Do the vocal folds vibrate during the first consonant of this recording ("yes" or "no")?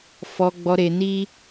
no